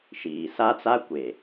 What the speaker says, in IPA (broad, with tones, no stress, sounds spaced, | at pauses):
ʃ iː˨ s a˦ t͡s a˦ kʷ e˨